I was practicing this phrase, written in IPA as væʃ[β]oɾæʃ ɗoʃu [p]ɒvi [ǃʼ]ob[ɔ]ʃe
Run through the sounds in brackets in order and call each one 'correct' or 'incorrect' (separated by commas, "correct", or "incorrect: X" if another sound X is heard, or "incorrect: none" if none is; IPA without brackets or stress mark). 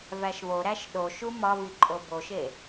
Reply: correct, incorrect: m, correct, incorrect: o